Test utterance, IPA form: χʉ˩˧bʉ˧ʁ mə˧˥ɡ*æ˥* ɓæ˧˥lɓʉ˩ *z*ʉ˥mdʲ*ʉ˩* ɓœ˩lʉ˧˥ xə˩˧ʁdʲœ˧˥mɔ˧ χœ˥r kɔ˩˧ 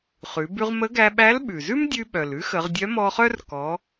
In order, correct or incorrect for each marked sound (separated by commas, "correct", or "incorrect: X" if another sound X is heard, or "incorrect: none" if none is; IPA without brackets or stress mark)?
incorrect: æ˧, correct, incorrect: ʉ˧